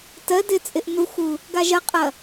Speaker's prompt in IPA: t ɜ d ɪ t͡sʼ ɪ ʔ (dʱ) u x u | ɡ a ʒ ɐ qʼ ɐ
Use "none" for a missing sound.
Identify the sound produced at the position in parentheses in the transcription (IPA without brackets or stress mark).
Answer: n